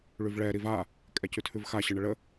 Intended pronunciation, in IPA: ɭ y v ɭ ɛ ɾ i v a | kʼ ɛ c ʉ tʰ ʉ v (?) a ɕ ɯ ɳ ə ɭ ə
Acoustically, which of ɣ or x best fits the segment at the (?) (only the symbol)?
x